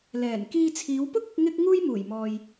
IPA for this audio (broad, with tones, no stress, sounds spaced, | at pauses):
l ɛː˨˩ n k iː˧ t͡sʰ iː˨˧ w p ʊ˥ k̚ ʊ˨˥ k̚ ŋ ɪ˥ k̚ ŋ uː˥ j m uː˨˩ j m ɔː˨ j